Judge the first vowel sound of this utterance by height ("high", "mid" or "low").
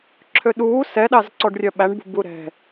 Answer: mid